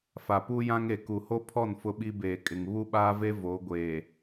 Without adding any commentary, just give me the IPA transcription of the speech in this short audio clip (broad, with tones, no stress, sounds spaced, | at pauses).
f a˨ p uː˦ j ã˦ ŋ e˨ k u˨ h o˦ pʰ ɔ˦˨ n f ʊ˦ ɓ i˦ b eː˨ kʼ ɪ˨ ŋ β u˦ ɓ aː˦ v e˦ v o˨˦ ɡʷ eː˨